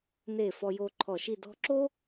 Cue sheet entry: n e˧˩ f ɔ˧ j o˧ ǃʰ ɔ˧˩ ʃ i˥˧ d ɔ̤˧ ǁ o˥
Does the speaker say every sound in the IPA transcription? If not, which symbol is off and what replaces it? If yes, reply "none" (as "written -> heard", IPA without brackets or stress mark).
none